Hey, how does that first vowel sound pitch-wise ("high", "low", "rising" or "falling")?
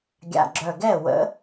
low